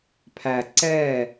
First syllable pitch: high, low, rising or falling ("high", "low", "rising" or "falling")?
low